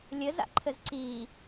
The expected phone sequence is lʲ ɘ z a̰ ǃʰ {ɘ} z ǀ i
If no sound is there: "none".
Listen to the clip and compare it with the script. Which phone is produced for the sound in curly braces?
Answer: ɘ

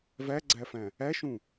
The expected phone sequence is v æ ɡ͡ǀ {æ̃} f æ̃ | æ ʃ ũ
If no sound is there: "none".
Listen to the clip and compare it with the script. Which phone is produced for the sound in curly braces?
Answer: æ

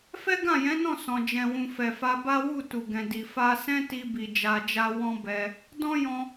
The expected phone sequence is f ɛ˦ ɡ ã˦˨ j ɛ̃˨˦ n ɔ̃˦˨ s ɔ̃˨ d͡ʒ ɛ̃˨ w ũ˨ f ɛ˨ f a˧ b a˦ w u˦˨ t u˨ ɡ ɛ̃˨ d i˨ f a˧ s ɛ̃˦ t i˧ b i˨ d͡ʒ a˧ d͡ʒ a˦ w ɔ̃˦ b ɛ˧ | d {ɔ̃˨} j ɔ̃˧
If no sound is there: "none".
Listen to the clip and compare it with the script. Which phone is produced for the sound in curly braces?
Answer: ɔ̃˦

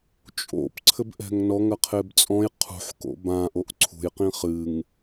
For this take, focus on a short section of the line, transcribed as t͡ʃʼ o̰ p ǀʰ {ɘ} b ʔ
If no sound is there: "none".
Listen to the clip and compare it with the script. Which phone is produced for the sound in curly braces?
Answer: ɘ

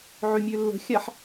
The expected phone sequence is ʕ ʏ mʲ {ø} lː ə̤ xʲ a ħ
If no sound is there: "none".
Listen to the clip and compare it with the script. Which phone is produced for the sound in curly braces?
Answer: ø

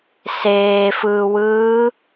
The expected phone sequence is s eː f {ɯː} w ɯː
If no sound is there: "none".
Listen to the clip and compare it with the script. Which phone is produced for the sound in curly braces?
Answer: ɯː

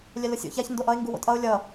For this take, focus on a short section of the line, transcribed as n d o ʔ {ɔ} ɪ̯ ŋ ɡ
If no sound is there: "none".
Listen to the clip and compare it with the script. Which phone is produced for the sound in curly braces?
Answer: ʌ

